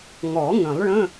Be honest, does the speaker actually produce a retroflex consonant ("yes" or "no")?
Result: yes